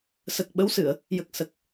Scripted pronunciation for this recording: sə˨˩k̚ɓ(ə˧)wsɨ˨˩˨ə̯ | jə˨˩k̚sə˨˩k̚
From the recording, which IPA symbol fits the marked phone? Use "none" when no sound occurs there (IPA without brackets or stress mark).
ə˧˥